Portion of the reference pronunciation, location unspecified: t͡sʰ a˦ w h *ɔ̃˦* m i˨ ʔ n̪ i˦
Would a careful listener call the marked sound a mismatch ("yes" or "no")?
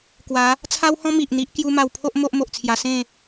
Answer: no